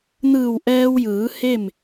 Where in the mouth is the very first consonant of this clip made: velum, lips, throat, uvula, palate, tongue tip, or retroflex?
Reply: tongue tip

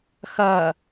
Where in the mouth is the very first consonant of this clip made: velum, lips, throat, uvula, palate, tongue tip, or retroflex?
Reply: velum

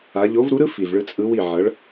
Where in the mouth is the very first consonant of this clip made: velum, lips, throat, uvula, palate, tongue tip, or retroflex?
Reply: palate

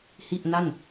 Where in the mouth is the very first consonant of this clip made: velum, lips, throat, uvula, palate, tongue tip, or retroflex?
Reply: throat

